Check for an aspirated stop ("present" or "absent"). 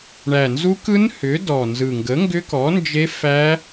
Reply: absent